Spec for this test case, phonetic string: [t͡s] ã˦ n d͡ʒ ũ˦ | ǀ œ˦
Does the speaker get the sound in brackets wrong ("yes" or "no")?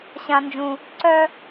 yes